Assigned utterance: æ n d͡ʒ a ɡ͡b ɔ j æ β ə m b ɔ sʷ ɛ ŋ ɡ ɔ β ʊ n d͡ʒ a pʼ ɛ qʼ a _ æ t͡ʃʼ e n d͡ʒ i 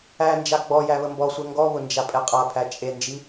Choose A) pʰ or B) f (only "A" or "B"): A